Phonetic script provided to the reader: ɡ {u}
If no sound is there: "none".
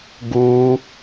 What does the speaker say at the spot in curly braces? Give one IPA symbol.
u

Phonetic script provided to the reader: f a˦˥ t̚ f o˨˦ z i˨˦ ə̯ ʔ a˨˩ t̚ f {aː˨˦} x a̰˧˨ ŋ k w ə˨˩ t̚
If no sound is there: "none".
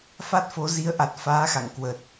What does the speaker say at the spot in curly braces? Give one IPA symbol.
aː˨˦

